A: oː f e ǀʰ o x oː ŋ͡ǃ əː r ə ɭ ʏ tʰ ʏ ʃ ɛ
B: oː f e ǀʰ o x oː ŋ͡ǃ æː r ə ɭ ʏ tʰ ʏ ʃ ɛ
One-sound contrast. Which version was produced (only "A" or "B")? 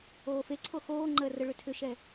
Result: A